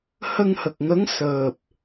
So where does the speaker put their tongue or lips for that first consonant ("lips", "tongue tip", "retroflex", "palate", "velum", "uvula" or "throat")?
throat